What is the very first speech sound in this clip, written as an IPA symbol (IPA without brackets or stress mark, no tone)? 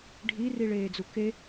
ɖʱ